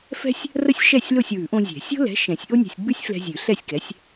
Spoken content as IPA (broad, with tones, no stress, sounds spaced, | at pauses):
f ɛ̤˥ sʲ | r ə˥ sʲ ʃ ɛ˥˨ sʲ l o˥˨ sʲ w ʉ˨˩˦ ʔ õ˧ zʲ ɛ̤˨˩˦ sʲ o̤˥ l ɛ̤˨˥ ʃ ɛ̃˨˩˦ sʲ ʔ o˥ nʲ ɛ̤˧ sʲ ɡ͡b ʉ˥ sʲ f l ɛ̤˧ zʲ ʉ˨˩˦ ɬ ɛ˥˨ sʲ k ɛ˨˥ sʲ